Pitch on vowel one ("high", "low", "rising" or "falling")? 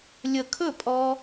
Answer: falling